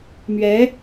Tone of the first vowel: rising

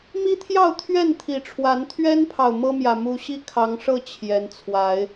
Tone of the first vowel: high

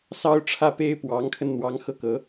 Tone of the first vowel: high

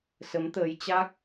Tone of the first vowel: rising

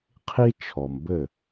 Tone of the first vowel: high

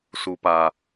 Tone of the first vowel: low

